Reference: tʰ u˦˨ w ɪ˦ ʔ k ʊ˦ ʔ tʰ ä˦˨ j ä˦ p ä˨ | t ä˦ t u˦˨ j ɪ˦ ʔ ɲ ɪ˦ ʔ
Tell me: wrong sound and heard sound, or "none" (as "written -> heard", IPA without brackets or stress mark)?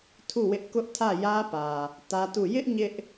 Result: none